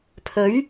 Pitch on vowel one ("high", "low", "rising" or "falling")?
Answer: rising